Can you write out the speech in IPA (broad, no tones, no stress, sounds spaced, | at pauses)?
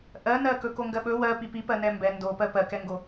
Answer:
ʔ ɜ n ɜ k ɵ k o ŋ ɡ ɜ ɓ ɵ w ɜ p i p i p ɜ n ɛ m b ɛ n d o p ɜ p ɜ k ɛ ŋ ɡ o